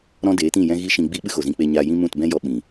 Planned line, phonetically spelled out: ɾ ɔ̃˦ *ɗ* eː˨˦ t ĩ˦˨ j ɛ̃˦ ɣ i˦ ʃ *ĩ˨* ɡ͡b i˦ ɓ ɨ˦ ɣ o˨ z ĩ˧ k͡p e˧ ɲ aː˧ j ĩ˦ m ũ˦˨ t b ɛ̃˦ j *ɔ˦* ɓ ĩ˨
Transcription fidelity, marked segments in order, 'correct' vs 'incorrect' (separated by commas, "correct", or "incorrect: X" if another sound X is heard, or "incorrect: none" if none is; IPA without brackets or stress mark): incorrect: d, incorrect: ĩ˧, incorrect: ɔ˧